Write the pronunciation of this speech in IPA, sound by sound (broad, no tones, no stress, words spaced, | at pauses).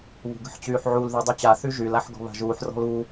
βṳɡə̤ħt͡ɕyːħʕul ðydˤyt͡ɕa θyʒyl aħɡɔ̤βa̤ʒuːħ rɔ̤lu